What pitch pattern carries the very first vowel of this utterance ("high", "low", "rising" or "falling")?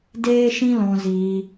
high